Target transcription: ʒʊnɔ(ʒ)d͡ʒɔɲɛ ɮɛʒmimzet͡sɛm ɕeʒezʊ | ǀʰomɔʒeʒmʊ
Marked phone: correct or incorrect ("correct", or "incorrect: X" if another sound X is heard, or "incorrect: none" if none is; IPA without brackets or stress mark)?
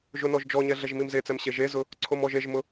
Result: correct